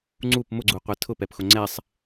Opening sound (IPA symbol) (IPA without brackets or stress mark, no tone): ŋ͡ǀ